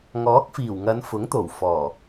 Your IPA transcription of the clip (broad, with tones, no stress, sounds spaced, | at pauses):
ŋ ɔː˨˥ k̚ f iː˨˩ w ŋ ɐ˨˧ n f ʊ˨˥ ŋ t̪ o˨˩ w f ɔː˨˩